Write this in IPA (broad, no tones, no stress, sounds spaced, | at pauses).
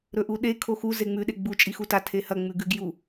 ɾ ɵ ʔ u ɗ e kʰ o x u z e ŋ͡m ʉ ɗ e ɡ͡b u t͡ʃʼ i x u t a tʰ e h ɐ ŋ͡m ʉ ɡ ʉ ɡ j u